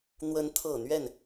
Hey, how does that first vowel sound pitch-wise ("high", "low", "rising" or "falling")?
rising